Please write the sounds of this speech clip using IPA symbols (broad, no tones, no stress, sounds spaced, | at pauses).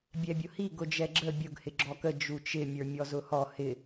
bʲ ɛ bʲ ʊ h i ɡ ʊ d͡ʒ ɛ ɡ͡ǁ ə bʲ ʊ ɡ h ɪ ɡ͡ǁ ɔ k ə d͡ʒ u t͡ʃ ɪ mʲ ə˞ mʲ ɔ z ʊ h ɔ h ɪ